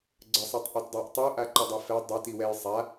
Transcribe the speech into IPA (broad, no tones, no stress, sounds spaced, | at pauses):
ɡ͡ǀ ə sˤ i tˤ ʔ u t dˤ a ʔ tˤ u ʔ a ǃ ə dˤ u f ɛ dˤ ɛ t i w ɛ j sˤ a